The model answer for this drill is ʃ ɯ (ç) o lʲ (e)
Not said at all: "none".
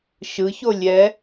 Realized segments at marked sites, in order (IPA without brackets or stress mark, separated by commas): ç, ɛ